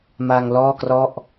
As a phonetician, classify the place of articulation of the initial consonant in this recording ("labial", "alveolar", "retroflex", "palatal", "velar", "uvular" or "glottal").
labial